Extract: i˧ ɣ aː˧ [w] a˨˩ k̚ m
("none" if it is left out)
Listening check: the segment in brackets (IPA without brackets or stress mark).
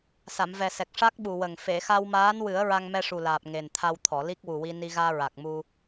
ɹ